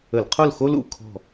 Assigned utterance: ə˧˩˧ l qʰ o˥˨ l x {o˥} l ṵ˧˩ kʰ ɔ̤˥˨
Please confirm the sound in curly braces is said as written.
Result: yes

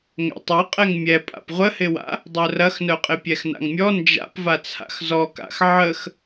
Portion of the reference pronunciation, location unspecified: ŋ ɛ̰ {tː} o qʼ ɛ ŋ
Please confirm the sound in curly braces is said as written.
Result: no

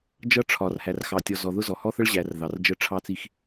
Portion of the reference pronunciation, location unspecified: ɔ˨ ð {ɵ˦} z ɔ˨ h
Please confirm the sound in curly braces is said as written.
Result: no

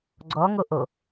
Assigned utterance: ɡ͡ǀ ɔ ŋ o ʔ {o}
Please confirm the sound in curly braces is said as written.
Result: yes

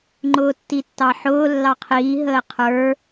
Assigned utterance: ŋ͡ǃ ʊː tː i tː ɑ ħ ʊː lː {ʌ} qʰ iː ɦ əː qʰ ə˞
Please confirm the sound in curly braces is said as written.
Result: no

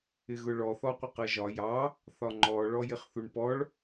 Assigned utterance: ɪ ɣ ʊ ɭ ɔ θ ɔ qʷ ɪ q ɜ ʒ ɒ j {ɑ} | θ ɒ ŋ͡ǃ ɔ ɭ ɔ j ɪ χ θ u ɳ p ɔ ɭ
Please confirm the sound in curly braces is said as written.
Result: yes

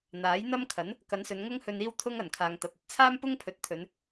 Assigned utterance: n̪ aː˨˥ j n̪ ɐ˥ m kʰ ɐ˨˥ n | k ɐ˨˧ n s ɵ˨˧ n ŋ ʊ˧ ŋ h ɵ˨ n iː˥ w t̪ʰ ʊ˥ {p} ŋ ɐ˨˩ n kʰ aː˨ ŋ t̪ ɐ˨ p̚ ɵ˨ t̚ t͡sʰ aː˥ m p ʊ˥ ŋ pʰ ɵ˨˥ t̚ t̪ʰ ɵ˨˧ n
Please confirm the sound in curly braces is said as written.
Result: no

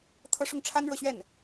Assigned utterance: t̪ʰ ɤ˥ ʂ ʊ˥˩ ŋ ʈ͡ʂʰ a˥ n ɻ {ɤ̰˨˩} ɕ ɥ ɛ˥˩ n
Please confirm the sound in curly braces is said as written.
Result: no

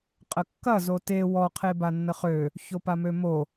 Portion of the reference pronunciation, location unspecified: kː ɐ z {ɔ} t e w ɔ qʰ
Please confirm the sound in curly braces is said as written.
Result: no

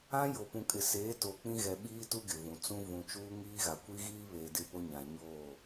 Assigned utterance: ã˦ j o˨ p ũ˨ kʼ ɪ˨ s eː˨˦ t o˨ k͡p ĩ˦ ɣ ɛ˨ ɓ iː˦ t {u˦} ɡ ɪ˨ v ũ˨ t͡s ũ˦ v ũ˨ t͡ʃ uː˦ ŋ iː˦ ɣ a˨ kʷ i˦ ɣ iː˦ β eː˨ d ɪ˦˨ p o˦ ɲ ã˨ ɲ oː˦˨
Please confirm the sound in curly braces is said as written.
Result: yes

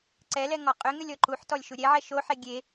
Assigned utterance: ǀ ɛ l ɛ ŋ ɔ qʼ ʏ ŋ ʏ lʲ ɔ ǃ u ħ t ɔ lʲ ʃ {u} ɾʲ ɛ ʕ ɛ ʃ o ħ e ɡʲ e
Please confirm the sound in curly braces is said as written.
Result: yes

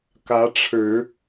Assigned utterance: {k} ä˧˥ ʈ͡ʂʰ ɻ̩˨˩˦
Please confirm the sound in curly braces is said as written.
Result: yes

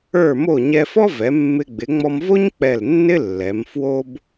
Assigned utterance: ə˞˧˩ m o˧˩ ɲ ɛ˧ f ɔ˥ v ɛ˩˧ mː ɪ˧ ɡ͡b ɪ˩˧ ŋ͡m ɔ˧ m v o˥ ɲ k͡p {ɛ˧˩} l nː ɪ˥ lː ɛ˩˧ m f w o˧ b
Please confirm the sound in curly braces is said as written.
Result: yes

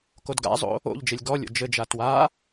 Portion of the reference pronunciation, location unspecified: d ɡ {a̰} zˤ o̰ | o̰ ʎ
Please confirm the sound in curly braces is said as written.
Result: yes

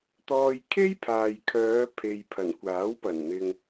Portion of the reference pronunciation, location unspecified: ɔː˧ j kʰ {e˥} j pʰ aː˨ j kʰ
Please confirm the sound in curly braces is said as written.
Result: yes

